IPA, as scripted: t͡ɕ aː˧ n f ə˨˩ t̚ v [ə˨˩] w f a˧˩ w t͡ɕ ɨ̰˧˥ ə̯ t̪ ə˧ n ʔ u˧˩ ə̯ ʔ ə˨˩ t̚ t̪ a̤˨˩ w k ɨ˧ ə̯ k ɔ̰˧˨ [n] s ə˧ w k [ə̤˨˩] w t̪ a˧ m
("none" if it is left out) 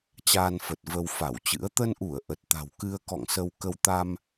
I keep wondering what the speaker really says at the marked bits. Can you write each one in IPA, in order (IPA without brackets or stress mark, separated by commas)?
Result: ə˧, ŋ, ə˧